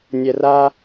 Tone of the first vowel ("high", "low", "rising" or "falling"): low